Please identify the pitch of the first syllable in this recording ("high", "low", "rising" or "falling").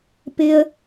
high